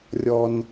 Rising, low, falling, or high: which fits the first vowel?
high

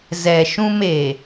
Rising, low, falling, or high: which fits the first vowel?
low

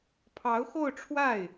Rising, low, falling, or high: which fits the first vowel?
rising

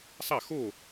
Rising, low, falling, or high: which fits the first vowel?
falling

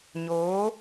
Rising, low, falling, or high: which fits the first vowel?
rising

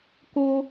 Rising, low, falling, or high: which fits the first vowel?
high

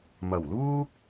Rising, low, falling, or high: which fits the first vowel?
low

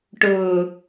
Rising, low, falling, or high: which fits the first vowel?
low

